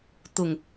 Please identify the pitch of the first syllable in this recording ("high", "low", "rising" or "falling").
low